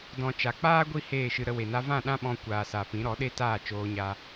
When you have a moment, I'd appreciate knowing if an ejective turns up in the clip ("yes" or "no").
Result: no